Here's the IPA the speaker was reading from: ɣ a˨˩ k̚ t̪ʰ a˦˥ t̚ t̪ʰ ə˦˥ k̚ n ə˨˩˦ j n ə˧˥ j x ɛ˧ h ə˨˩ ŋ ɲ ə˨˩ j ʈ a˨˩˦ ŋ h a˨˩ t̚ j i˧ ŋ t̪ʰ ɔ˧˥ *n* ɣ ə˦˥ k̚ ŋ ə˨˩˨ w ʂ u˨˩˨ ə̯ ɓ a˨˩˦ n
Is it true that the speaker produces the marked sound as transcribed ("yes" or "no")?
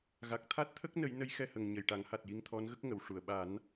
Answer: yes